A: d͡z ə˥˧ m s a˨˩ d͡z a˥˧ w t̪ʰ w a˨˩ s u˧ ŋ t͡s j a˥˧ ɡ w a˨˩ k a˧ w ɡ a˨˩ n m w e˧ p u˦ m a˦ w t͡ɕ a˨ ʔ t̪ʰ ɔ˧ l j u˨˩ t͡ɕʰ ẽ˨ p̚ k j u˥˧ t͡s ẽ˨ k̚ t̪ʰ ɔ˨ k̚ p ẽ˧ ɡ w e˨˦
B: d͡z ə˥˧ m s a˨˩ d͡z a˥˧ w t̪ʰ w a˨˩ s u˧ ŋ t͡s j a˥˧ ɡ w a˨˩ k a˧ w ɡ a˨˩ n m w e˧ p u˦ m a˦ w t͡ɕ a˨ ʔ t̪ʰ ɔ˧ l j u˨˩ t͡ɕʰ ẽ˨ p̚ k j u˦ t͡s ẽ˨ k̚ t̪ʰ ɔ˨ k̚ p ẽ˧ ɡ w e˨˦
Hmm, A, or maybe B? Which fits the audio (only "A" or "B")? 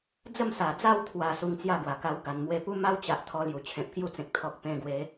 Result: A